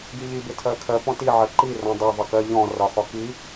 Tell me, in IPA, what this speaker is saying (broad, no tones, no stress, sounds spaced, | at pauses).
ɡ i ʎ i b ɪ tʰ ɜ kʰ ɜ p ɔ̃ t i ʕ ɜ ǃ i r ɔ̃ dˤ ɜ ðˤ ʌ k ɜ ʎ ɔ̃ r ɒ χ ɔ k i